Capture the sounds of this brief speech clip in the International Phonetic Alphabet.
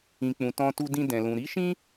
ĩ˨k͡pũ˨ tɔ̃˧tu˧ dĩ˧dɛ̃˨lũ˨ ɾi˨˦ʃĩ˦

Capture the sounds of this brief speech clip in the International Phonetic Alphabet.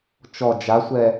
t͡ʃɔ d͡ʒasʷɛ

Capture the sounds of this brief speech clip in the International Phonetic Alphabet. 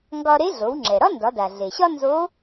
ŋɡɒ˧ɾe˧˥ ɮo˩˧wŋ͡ǁɛ˩ɾɒ˥ ndɒ˩˧da˩ ɮe˩ɕɒ˥ nzo˧˥

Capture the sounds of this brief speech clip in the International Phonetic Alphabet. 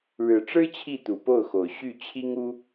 ɻɻ̩˨˩ʈ͡ʂɻ̩˥ t͡ɕʰi˥˩t̪u˨˩po˥˩ʊ̯xo˨˩ʊ̯ ɕy˥˩ t͡ɕʰi˥ŋu˥

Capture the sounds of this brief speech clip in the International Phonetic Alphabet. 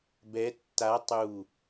bɛ tːa tˤu

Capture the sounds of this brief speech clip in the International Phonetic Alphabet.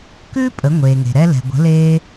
kʉː˥pʼə˩˧ ŋʷeː˩ŋe̤˩ɾɛ˧lɛ̤˩ ɡʷə̤˩˧ leː˧

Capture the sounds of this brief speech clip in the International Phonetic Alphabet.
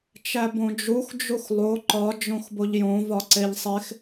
t͡ʃæbõd͡ʒux d͡ʒuxlˠo ǃɒ d͡ʒõxboʎjõ vɒǀeʎsˤex

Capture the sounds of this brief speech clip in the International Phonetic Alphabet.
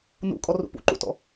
nṵkʼɔr ṵpṵǃṵtɔ̰

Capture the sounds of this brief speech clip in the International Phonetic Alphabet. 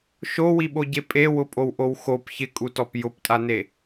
ʃowiɓoɟe pʼewʊpʼowʔow xop çɪkʼutɔp jʊptʼane

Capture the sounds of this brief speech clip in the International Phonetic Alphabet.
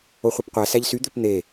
oχʷepqʷæ sæʎsy d̪øpn̪e

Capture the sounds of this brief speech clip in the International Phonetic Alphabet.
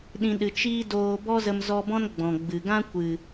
ɗĩ˨ɗɨ˨ t͡ʃiː˦doː˧ bɔ˦zə˧mzɔ˧bɔ̃˦n ɡ͡bɔ̃˨ɡ͡bɨ˨ ɡã˦kʷɨ˨

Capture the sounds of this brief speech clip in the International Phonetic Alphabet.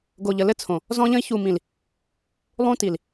ɡo˨ʎə˨lɘ˦t͡sʰõ˨ | zɔ̃˦ʎə̃˦i̯ çu˨mĩ˨l | lˠũ˦ti˨l

